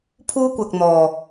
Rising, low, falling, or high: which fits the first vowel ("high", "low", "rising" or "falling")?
high